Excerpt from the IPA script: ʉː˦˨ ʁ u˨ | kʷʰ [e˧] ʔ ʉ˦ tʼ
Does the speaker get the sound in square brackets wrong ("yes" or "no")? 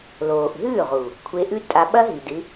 no